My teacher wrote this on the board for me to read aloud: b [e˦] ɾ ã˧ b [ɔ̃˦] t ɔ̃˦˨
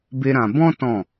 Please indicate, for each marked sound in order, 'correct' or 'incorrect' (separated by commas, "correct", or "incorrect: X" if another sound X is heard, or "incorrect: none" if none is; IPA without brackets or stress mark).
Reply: correct, correct